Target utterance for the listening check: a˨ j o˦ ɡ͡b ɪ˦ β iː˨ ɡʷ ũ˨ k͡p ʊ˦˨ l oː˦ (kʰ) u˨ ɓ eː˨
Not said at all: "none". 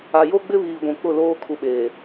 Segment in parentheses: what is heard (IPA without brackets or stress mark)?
kʰ